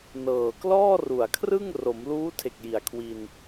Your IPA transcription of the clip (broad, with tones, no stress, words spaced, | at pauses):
nɤː˨˩klɔː˥˩ru˨˩a̯kʰrɯ˥˩ŋ ro˩˦mluː˦˥tʰe˨˩k̚ji˩˦a̯ kʰwi˧n